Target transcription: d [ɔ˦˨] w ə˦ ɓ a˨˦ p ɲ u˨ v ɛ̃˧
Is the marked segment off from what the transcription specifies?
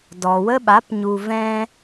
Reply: yes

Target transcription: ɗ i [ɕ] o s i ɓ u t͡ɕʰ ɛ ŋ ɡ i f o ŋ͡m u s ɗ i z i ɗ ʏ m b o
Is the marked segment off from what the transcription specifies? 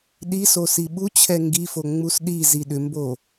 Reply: yes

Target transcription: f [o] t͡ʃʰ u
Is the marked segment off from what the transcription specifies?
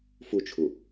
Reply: yes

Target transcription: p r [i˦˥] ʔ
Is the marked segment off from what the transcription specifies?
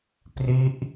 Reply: no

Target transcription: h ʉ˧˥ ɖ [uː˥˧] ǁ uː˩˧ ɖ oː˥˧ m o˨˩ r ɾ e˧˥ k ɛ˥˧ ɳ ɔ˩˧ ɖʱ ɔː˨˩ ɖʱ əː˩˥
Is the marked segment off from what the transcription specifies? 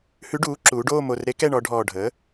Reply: yes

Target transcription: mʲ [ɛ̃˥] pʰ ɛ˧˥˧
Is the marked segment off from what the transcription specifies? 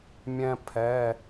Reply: no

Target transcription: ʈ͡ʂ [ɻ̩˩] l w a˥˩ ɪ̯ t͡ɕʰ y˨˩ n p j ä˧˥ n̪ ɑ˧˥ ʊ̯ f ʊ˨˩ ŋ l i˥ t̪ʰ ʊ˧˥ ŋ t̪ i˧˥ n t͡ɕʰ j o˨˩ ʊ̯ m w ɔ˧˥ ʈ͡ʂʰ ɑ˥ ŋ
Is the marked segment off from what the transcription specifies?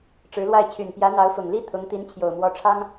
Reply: yes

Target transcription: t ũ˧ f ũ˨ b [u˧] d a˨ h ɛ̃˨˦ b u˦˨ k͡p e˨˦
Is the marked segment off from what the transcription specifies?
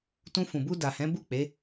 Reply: no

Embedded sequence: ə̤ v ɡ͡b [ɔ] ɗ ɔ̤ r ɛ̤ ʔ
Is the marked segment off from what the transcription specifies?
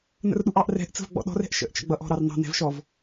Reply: yes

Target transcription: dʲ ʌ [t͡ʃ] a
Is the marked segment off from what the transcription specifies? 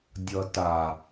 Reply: yes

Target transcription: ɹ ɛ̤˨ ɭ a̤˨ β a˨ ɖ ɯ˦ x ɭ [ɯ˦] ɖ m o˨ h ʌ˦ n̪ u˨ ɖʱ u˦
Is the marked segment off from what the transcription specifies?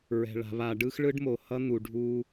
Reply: no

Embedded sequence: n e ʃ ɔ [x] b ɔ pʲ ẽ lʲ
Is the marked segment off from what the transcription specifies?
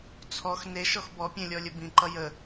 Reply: no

